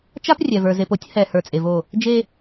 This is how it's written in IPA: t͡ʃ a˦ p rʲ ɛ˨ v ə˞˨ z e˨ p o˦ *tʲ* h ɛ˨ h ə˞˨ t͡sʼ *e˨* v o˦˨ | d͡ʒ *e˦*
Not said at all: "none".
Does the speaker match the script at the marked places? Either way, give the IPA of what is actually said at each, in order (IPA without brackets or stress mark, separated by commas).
tʲ, e˨, e˦